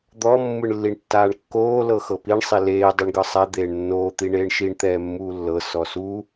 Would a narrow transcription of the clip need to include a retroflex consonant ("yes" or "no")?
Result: yes